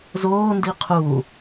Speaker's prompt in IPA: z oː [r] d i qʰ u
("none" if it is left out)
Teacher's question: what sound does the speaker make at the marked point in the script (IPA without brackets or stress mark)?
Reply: n